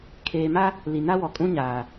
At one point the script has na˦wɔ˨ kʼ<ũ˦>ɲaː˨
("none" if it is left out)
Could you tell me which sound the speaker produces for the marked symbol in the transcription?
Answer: ũ˦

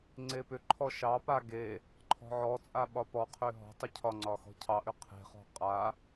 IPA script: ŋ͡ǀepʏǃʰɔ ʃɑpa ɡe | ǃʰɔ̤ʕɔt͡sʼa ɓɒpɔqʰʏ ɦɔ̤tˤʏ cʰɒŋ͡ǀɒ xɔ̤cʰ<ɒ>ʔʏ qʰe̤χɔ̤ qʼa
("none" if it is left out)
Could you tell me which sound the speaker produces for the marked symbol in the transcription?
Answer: ɑ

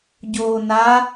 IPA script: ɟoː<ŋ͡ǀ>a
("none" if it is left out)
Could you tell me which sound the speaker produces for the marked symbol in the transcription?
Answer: n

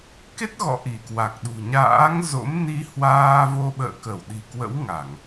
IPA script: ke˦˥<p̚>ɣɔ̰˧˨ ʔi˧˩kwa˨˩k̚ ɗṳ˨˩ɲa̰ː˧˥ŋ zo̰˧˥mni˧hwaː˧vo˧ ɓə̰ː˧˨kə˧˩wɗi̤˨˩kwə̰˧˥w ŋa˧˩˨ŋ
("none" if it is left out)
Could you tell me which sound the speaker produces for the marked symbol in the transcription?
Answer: t̚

